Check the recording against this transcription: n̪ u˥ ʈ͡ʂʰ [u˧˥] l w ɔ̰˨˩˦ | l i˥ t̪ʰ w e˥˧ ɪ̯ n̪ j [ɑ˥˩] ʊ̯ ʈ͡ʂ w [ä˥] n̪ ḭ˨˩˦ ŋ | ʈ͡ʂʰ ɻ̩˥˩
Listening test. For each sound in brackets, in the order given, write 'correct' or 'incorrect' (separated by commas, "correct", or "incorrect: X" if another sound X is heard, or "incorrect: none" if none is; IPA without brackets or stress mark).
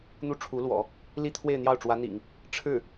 correct, correct, incorrect: ä˧˥